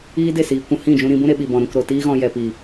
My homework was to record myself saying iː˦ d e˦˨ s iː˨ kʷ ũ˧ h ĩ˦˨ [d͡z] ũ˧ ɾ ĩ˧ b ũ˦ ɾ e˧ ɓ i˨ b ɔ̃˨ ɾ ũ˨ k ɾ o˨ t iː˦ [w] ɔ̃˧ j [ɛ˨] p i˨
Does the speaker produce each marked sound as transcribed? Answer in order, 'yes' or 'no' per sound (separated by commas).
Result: no, no, yes